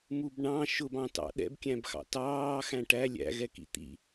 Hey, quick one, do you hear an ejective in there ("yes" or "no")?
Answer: no